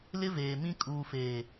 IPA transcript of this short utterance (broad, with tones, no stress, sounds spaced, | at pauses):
l ɪ˦ v eː˨ m ĩ˦ kʼ uː˨ f eː˨